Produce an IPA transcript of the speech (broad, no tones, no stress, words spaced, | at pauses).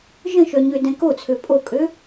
ʒə̃ʃœ ɲødɛ̃kot͡sʰø pʼokʼø